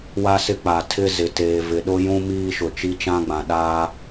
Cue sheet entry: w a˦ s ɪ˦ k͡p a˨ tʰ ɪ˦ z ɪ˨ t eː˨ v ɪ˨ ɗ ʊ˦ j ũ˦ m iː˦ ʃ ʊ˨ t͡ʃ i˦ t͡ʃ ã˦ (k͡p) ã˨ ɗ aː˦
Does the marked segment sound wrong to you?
yes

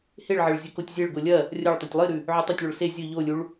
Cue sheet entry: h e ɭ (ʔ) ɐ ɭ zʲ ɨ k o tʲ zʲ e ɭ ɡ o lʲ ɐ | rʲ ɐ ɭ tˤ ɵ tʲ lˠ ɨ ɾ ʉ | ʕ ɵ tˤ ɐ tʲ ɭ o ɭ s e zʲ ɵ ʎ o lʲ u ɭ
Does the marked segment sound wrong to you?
yes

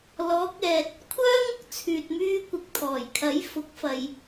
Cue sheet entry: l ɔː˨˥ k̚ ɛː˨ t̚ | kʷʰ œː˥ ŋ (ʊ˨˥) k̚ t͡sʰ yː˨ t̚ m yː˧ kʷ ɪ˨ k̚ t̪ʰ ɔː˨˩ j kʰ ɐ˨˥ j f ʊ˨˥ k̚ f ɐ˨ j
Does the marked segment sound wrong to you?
yes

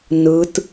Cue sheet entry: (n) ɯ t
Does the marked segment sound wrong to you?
no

